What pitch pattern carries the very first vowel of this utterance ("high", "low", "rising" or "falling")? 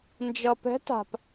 low